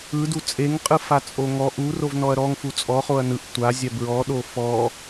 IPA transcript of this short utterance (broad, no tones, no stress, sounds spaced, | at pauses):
ɯ d u t͡sʼ e ŋ qʼ ɯ f a t͡sʼ o ŋ ɔ ʔ u r o v n ɔ ɐ̯ ɾ ɔ ŋ f u t͡sʼ ɔ χ o ɐ̯ n ɯ ʔ tʷ a zʲ a b ɹ ɔ ɗ o f ɔ